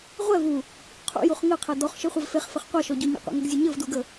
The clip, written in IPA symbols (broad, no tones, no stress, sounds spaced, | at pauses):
ʁʷ ɛ v u | qʰ ṵ j u χ ŋ ɘ qʰ ɛ d ɔ χ ʃ ɘ χʷ ɛ v f e χ f ɘ χ qʷ a ʃ ɔ ɟ u ɲ ə̰ qʷ ḛ ŋ ə ɡ zʲ ə ɲ ɘ v d u ɡ ə